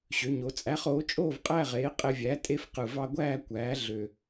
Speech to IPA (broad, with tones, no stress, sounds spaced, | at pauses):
ɕ ø˩˥ ɲ o˩˥ t͡sʼ æ˩˥ χ oː˩˥ t͡ʃʼ oː˥˨ v qʼ æ˥˨ ʁ eː˩˥ qʼ e˧ vʲ æː˩˥ tʼ e˧ f q ɯ˨˩ v ɑ˧ ɡʷ æː˥˨ kʷ æː˩˥ ɮ ø˨˩